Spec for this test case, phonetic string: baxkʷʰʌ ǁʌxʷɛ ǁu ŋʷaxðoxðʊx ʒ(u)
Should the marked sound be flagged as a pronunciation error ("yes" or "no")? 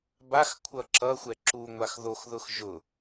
yes